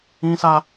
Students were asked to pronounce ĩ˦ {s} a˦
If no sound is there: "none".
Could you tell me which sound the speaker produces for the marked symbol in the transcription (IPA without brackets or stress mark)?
s